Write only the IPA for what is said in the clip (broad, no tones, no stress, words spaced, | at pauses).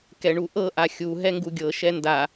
kɛɳuʔɤ ʔaxʲu ɦɛŋɡuɡʲɤ ʃɛnda